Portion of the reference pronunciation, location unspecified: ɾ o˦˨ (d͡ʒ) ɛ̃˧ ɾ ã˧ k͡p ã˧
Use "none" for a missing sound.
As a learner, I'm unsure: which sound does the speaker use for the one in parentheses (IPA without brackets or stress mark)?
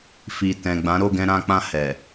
ɡ